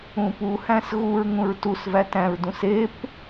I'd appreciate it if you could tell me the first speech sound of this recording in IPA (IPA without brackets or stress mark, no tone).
ũ